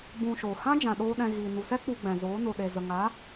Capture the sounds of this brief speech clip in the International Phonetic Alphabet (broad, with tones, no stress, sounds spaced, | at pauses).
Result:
b ũ˧ ʃ oː˨ h ã˦ d͡ʒ ã˨ ɗ oː˧ ɗ ɛ̃˧ ɣ iː˨ n u˨ s ɛ˦ k͡p u˧ ɡ͡b ɛ̃˨ z oː˨˦ n o˨ ɗ e˨ z ə˨ ŋ a˨˦